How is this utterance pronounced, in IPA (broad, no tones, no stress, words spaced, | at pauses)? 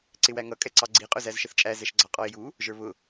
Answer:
ǀɪwæŋʌ kʼɛǀɑɡ͡ǀi qʼʊzæzʃəθt͡ʃʼæ zɛʃɡ͡ǀɑqʼɔɪ̯ju | ʒə˞βʊ